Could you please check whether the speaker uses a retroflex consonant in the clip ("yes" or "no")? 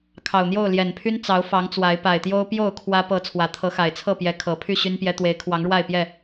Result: yes